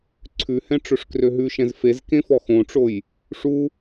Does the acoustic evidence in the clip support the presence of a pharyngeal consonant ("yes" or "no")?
no